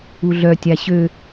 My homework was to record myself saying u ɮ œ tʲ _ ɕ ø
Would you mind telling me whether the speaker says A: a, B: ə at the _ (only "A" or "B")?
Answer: A